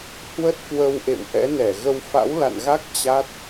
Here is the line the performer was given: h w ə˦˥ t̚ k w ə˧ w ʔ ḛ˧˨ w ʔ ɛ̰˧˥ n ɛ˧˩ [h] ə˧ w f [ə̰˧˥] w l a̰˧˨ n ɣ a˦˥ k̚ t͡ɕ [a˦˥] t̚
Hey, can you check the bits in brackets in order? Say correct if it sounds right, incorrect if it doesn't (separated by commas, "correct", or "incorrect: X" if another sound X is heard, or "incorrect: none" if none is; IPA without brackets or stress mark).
incorrect: ɣ, incorrect: a̰˧˥, correct